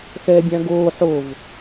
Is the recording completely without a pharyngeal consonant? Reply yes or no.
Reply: no